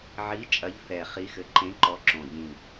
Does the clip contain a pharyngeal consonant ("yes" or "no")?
yes